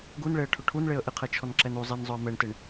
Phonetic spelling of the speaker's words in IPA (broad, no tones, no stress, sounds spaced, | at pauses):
ɡ u n ɭ e ə̯ ʈʰ ʊ ʈʰ u n ɭ e ə̯ ʔ ɪ qʰ ɛ t͡ʃʰ ɔ n ǁ ɛ n u zˤ i n zˤ ʊ ə̯ m ɛ ɳ t ɪ ɳ